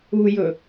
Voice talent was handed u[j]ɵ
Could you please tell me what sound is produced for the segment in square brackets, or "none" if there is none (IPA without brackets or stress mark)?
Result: j